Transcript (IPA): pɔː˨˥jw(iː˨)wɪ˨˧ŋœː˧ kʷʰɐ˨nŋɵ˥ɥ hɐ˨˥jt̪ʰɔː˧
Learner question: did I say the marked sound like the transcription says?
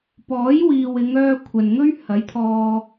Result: yes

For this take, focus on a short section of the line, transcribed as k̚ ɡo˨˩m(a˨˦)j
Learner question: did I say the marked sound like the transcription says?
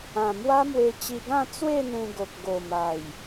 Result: no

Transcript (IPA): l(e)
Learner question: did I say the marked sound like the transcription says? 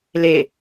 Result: yes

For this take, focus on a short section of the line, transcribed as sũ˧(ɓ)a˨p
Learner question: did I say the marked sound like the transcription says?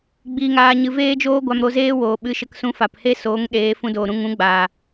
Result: no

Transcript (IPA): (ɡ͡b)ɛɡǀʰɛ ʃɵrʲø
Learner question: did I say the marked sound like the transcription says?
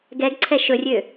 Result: no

